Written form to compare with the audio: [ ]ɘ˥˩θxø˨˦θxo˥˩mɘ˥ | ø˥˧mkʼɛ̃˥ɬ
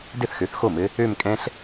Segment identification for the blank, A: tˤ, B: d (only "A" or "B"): B